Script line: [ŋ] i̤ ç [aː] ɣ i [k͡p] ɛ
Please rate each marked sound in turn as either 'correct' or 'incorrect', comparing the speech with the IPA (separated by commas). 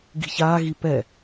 incorrect, correct, incorrect